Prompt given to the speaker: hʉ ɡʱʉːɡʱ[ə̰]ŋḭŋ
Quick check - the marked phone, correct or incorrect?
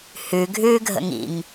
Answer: correct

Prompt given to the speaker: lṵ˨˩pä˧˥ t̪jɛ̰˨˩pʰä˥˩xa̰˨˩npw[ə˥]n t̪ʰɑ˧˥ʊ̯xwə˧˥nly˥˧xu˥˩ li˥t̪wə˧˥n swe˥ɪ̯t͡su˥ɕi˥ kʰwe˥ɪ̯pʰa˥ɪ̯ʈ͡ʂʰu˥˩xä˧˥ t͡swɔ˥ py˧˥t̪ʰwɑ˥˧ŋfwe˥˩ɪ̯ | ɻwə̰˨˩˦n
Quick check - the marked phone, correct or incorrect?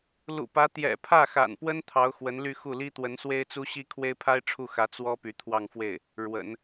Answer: correct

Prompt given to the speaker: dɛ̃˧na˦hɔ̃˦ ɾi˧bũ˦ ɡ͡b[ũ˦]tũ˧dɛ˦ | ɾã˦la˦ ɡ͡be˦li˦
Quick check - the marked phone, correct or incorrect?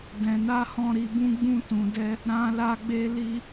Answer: correct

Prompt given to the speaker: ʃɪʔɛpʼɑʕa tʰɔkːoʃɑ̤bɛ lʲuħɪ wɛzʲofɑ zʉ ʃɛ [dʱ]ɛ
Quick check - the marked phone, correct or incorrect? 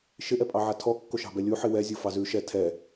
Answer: incorrect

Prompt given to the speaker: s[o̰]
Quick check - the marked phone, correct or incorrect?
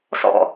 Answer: incorrect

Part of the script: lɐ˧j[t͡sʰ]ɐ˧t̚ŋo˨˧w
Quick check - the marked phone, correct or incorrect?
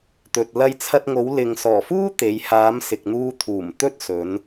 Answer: correct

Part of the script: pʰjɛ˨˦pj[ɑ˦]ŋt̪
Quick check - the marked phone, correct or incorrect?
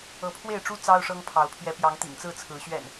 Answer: incorrect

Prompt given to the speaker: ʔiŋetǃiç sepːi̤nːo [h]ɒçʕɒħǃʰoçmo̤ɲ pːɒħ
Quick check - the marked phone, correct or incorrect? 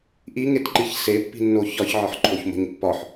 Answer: incorrect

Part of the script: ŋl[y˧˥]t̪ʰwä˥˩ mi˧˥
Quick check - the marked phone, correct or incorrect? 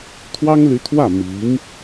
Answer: correct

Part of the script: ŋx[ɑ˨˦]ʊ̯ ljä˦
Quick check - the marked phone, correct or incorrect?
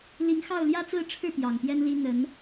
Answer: incorrect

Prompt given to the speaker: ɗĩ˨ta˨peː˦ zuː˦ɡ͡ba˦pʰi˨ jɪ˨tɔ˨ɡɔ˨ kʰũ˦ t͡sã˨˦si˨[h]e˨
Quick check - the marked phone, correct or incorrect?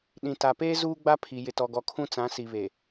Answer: incorrect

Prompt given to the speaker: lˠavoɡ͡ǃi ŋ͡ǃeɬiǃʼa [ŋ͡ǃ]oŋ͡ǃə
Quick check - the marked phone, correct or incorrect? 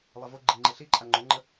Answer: correct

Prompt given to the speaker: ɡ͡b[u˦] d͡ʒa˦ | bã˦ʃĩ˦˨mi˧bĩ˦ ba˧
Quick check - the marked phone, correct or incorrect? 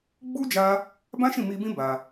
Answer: correct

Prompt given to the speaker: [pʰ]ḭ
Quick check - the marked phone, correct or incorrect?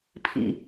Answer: correct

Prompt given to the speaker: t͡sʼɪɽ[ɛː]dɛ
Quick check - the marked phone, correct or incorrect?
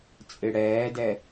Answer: correct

